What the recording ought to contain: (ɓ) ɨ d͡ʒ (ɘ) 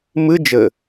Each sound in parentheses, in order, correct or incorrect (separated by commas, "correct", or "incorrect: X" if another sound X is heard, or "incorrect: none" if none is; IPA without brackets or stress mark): incorrect: m, correct